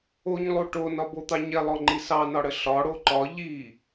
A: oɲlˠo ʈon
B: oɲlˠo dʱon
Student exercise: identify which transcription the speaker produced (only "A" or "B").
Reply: A